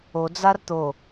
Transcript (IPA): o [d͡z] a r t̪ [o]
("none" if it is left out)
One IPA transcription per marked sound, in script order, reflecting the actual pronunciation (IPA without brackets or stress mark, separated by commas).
d͡z, o